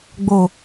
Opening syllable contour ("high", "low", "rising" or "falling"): low